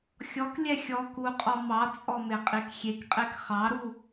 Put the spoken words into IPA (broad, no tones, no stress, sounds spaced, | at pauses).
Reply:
xʲ ɔ k lʲ ɛ xʲ ɔ k u qʼ ɔ m ɑ t͡sʼ ɔ m e qʼ i k xʲ e k qʼ e k χ ɑ ɾ u